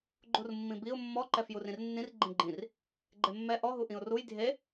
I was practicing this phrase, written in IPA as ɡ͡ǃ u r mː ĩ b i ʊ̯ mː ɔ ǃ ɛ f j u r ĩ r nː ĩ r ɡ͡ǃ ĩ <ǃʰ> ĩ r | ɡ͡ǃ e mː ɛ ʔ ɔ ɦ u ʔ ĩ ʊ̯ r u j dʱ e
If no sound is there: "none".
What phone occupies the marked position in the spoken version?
ɡ͡ǃ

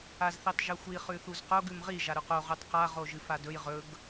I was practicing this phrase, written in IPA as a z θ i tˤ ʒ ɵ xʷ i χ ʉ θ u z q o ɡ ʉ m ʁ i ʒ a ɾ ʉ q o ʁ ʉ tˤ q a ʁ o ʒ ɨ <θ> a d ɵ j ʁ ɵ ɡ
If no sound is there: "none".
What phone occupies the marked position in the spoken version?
f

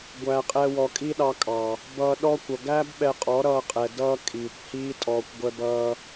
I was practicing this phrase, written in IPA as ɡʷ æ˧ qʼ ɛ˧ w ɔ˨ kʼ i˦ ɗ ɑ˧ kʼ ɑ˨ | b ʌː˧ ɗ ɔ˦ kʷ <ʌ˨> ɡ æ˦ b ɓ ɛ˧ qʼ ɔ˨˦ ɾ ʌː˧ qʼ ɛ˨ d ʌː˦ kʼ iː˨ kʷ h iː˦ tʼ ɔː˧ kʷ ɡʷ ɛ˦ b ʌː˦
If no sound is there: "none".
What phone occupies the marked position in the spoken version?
ʌ˨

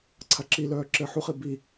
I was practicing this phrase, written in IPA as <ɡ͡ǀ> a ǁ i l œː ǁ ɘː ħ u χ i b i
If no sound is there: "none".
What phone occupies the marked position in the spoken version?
ǀʰ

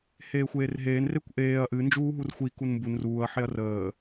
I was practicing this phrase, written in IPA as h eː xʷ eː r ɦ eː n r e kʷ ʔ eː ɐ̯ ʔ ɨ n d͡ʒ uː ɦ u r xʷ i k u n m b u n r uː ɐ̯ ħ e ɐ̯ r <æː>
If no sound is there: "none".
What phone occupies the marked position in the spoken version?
əː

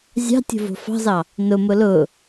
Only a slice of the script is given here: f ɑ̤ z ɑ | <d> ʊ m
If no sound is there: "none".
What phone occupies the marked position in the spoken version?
n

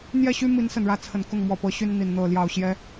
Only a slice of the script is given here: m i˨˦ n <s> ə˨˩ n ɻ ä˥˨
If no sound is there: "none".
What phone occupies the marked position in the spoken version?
s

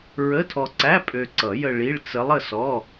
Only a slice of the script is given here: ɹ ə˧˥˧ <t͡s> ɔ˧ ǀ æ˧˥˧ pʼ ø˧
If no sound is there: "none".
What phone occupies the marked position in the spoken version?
tʰ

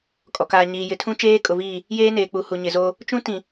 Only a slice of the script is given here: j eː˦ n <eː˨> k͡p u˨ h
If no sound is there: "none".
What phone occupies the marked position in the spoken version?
eː˨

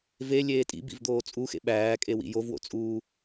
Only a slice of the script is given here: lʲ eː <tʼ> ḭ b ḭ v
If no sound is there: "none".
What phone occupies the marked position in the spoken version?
tʼ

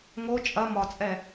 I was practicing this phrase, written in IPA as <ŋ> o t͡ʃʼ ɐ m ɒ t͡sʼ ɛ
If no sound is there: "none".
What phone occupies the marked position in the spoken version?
ŋ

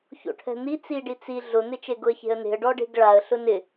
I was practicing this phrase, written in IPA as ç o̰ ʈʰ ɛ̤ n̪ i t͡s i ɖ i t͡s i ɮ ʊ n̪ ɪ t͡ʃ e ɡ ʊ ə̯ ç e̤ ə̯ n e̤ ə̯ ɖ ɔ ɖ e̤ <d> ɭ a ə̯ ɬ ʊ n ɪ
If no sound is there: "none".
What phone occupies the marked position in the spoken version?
ɡ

